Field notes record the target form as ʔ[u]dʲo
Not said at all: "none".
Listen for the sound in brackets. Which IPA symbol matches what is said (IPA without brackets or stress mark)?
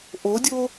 o